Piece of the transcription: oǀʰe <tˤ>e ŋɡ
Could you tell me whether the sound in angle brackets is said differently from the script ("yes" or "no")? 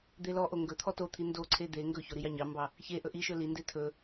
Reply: yes